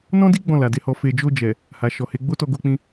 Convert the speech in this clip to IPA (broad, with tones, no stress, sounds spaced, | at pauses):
n ɔ̃˦ d i˦ ɡ͡b ɔ̃˦˨ l a˨ d e˧ h ɔ˧ f e˧ d͡ʒ o˧ d͡ʒ ɛ˨ | h a˨ ʃ ɔ˨ h e˨˦ ɡ͡b o˦ t ɔ˧ ɡ o˧ k͡p ĩ˧